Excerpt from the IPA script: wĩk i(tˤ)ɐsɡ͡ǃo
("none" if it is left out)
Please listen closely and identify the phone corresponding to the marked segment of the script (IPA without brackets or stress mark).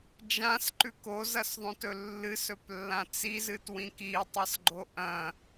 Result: tˤ